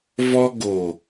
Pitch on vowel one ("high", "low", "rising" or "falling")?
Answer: high